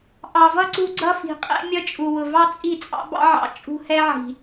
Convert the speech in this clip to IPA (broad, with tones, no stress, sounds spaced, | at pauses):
ʔ ɑ˨ v ʌ˦ ǀ u˧ ɡ͡ǀ ʌ˦ f i̤˨ qʼ ɛ̰˦ mʲ ʌ˦ t͡ʃʼ u˨ w ʊ˨ v ɑ˦ t͡sʼ i˦˨ t͡sʼ ɑ̰˦ b ɑ̰˦ ʕ ɑ̰˧ t͡ʃʼ ṳ˦ h ɛ˦ ʕ i̤˨